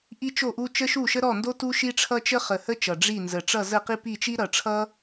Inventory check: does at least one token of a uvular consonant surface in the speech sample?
yes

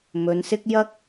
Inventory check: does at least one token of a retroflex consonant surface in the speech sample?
no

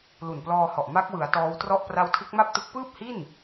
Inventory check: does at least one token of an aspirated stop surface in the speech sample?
yes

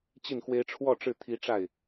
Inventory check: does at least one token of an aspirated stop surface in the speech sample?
yes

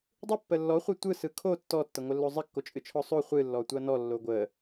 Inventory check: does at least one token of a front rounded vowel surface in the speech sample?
no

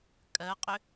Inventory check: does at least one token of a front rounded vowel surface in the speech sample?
yes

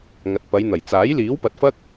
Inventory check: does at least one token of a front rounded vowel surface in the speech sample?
no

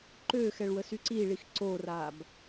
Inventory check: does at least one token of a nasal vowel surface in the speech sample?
no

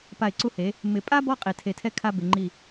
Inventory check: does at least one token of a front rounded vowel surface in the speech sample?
no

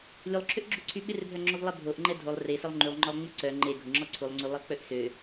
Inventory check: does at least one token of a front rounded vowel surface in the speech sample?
yes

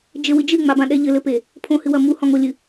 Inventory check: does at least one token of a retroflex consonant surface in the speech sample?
no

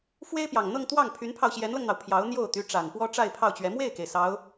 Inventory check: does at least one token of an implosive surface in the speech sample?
no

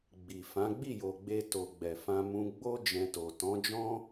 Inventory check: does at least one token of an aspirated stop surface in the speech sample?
no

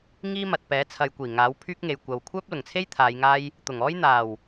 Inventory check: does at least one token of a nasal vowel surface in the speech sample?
no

